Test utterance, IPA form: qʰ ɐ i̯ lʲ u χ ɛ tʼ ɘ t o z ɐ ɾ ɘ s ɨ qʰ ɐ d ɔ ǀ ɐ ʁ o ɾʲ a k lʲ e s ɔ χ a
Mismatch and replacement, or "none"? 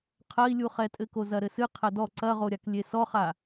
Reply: t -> k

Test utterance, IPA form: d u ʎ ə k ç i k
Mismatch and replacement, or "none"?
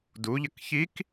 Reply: none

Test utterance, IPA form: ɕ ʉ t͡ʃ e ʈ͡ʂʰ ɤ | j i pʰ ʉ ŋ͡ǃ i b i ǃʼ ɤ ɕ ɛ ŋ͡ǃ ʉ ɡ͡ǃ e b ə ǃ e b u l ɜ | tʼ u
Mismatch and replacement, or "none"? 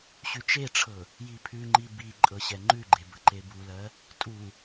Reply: none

